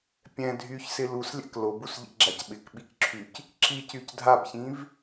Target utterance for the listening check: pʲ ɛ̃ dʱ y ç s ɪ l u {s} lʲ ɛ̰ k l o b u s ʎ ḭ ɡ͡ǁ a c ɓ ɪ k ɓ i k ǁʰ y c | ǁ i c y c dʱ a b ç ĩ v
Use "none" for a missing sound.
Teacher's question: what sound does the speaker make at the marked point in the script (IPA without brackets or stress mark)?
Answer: s